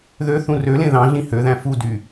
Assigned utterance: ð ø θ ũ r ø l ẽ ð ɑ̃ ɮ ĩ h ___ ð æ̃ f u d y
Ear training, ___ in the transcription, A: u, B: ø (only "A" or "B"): B